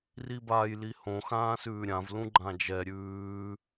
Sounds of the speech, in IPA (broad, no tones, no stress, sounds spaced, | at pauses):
r i b aː j l i h õ x ãː s ʉː ɾʲ ã v l ũ ɡ͡ǃ ã d͡ʒ ɛ ɾʲ ʉː